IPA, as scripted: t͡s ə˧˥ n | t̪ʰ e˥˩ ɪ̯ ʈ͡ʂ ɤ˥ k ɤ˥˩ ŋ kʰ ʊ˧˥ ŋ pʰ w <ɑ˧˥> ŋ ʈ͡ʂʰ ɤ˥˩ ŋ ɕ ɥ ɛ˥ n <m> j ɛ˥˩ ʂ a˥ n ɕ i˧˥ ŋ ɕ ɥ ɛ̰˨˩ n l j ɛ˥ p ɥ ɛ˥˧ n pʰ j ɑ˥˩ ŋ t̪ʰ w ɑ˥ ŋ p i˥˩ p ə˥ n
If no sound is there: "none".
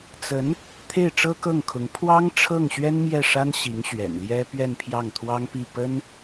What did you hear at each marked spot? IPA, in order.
ɑ˥, m

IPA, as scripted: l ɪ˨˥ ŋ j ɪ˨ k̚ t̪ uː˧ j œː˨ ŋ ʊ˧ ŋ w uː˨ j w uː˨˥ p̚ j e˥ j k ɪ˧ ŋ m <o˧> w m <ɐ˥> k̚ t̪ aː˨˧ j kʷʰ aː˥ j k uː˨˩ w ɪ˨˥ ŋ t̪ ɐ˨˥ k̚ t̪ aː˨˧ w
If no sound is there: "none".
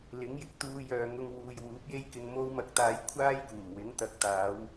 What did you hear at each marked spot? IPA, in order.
o˧, ɐ˨˥

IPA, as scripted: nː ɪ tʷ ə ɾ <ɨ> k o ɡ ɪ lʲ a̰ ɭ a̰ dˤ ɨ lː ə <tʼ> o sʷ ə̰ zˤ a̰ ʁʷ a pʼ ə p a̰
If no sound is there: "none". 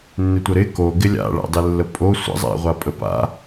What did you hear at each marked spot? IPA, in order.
ɪ, pʼ

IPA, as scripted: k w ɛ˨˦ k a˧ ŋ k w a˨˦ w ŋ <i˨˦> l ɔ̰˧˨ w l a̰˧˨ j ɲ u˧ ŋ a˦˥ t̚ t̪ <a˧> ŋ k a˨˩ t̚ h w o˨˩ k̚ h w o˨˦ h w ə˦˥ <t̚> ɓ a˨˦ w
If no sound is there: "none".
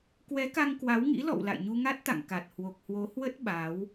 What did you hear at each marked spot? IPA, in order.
ḭ˧˥, a̰˧˨, t̚

